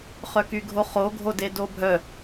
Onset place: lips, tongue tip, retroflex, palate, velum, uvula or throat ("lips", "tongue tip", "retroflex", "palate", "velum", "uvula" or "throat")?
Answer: uvula